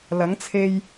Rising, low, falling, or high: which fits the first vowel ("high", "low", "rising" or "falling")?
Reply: rising